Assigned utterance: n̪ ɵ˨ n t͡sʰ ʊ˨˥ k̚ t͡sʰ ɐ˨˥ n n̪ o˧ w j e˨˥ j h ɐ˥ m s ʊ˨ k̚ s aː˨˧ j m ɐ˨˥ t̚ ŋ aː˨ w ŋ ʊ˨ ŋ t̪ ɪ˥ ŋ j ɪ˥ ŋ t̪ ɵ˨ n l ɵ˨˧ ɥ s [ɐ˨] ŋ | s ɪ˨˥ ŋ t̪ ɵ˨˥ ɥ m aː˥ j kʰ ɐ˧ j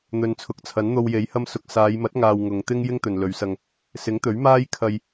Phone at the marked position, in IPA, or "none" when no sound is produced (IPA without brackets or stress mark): ɐ˧